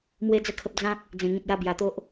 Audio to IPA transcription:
m w e˦ d͡z ə˥˧ kʰ ə˦ p̚ d͡z ã˦ k̚ | d͡z ẽ˨˩ ŋ ĩ˨ t̚ j a˧ b j a˨˩ t̪ o˦ ʔ

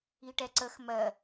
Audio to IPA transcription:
i ʈ ɛ ǀ ə x m ɜ

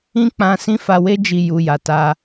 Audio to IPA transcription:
ĩ˦ k͡p ã˧ s ĩ˦ f a˧ w e˦ d͡ʒ i˦˨ j u˧ j a˨ t a˧

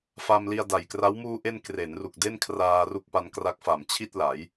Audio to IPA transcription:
f a˧ m l i˧ a̯ d a˨˩ j k r a˦˥ w m uː˧ ʔ e˧ n k r e˩˦ n r u˨˩ k̚ d e˥˩ n kʰ r aː˧ r u˦˥ k̚ p a˧ n k r a˦˥ k̚ f a˨˩ m t͡ɕʰ i˥˩ t̚ l a˩˦ j

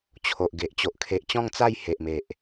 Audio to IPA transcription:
t͡ɕʰ o˨ ʔ ɡ e˨ ʔ t͡ɕ o˨ ʔ kʰ e˨ ʔ t͡ɕ ɔ̃˥˧ ŋ t͡s a˥˧ j h e˨ ʔ m e˨ ʔ

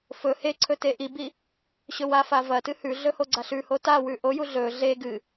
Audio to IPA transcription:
f ɵ h e ǀʰ ɵ t e ʔ i b i | ɕ ɵ w a f a v ɐ t ɨ h ʉ ɮ ɵ h o ɡ͡ǀ a ɬ ʉ h o t a w ʉ ʔ o j u ɮ ɵ ɮ e ɡ ɨ

